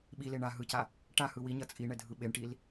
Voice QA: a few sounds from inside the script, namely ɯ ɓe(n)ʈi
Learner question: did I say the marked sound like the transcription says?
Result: no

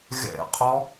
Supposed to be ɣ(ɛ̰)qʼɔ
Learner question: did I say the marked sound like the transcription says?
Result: yes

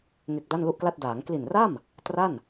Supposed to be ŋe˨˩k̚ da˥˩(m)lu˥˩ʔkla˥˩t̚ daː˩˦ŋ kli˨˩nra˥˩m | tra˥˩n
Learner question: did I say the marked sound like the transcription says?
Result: no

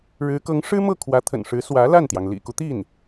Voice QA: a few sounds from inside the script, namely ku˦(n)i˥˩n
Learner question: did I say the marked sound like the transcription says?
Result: no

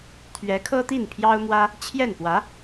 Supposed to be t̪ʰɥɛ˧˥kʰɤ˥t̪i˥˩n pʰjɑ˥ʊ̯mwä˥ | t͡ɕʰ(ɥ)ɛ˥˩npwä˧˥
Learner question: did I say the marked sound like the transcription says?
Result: no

